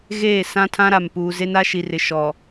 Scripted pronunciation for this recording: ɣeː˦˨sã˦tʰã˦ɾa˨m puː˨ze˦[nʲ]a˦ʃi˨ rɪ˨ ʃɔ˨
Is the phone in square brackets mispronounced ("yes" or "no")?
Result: yes